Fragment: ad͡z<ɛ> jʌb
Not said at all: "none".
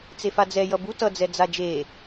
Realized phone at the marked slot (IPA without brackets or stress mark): ɛ